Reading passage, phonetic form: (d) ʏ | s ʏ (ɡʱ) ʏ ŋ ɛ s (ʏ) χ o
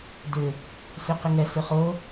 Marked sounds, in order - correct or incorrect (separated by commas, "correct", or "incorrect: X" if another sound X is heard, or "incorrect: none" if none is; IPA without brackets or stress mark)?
correct, incorrect: q, correct